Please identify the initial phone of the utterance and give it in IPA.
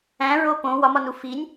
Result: æ̃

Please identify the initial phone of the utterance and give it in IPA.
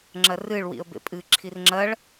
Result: ŋ͡ǁ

